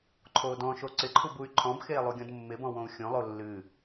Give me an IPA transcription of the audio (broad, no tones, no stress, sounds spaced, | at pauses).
ǃʰ oː d ɔ̃ ʃ o ǀ ɪ ǃʰ u b u y̯ ǃʰ ɔ̃ b x eː lˠ u ɡʲ ɔ̃ d mː ɪ b ɔ̃ w õ u̯ xʲ õ lˠ o lː ɨ